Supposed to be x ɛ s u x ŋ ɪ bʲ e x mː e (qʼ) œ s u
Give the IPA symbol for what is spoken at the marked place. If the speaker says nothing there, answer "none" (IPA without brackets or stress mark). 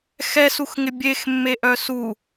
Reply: ʔ